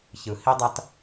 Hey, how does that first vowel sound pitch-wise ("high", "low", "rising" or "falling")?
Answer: low